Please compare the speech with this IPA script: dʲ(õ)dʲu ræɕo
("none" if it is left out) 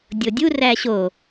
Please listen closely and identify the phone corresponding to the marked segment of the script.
o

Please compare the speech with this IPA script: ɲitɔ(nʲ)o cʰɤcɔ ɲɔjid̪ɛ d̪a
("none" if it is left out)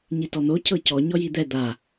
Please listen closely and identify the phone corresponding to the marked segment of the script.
n̪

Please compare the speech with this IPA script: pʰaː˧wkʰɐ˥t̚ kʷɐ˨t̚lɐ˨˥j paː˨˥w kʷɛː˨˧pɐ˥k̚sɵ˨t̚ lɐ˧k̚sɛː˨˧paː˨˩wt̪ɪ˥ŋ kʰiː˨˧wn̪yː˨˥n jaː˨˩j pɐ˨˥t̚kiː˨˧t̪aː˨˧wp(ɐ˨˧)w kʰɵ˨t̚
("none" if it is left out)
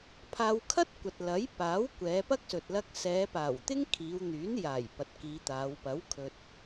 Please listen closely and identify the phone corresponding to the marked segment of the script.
ɐ˨˥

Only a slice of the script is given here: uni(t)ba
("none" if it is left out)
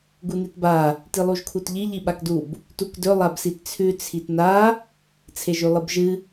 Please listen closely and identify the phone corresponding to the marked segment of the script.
t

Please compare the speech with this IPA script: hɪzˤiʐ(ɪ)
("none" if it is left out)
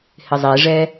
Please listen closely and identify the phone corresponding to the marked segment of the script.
ɛ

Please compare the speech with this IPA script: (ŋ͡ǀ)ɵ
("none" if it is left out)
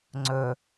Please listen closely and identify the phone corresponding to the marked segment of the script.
ŋ͡ǀ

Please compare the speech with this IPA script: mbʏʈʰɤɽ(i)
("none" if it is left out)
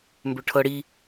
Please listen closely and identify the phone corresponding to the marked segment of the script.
i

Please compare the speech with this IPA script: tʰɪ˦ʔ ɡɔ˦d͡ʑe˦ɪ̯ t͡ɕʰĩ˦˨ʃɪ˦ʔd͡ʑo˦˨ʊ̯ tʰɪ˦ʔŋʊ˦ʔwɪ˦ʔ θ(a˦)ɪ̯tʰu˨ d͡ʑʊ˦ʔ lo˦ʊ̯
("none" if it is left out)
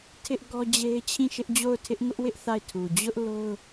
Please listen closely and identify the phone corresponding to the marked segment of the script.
a˦˨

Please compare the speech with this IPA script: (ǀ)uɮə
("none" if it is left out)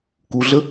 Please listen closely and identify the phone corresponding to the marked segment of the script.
k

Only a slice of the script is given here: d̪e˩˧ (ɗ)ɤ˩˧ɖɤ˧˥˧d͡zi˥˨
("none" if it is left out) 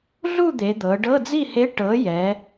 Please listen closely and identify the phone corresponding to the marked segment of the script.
d̪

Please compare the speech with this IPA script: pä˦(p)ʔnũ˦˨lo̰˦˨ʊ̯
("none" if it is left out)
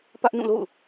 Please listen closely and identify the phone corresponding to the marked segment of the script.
none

